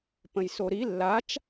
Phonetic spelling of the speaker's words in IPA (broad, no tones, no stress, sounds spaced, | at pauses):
p ə̃ j s o ɾ i lː a t͡ʃ